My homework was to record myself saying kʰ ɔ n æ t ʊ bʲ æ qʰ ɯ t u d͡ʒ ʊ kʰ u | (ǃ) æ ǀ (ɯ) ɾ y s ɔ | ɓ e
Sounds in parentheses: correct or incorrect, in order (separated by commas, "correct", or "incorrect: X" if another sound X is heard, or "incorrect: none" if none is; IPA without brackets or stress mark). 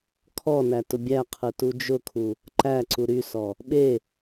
correct, incorrect: u